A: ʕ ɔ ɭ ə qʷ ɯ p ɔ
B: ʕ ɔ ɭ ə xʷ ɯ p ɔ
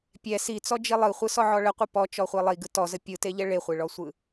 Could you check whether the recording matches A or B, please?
A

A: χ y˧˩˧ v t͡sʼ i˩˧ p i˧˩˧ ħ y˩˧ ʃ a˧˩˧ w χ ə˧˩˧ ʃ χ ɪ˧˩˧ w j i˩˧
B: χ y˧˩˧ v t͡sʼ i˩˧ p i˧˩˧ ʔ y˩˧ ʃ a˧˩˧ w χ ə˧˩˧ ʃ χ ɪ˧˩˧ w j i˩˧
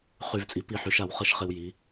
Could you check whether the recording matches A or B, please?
A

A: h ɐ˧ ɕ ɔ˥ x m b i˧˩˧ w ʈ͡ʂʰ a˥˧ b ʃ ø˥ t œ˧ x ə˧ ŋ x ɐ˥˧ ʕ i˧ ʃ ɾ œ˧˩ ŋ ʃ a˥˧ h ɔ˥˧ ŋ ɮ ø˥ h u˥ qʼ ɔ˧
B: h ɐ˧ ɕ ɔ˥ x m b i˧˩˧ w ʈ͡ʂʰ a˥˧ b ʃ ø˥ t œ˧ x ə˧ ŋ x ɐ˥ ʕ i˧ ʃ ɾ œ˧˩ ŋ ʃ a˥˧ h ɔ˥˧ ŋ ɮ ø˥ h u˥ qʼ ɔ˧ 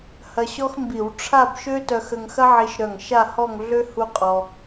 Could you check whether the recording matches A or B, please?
B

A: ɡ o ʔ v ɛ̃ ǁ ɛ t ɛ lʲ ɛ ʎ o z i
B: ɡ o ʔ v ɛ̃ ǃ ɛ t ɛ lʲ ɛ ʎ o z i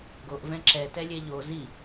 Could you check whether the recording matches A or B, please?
A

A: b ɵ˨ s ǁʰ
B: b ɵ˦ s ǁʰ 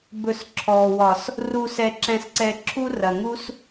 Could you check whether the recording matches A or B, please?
A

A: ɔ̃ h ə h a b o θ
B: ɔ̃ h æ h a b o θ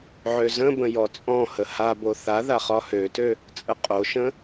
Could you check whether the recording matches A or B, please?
A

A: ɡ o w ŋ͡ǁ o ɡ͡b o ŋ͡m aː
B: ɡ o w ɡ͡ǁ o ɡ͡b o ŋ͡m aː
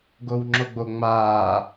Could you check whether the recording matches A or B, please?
A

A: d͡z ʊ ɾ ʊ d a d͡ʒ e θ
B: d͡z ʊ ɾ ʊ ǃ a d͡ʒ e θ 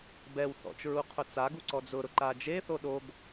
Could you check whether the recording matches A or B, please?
B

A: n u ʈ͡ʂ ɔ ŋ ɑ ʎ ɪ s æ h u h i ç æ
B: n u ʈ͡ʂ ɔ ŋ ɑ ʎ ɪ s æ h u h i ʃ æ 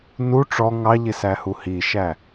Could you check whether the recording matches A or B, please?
B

